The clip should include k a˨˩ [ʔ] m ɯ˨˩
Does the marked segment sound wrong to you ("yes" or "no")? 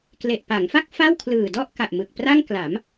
no